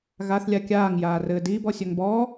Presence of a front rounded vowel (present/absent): present